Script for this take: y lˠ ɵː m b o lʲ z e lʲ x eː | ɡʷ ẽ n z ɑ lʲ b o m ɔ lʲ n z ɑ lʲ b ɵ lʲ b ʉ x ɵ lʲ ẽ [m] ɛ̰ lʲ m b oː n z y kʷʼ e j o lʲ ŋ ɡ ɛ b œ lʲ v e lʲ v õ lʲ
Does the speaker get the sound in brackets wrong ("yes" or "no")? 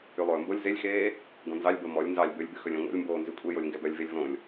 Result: yes